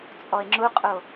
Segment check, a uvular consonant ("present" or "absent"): present